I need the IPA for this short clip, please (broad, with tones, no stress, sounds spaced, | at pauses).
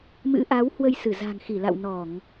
m ɨ̰˧˥ ʔ a˨˦ w h w ə˧ j s ɨ˧˩ z a̤˨˩ ŋ x i˧˩ l a̰˧˨ w n ɔ˧˩˨ ŋ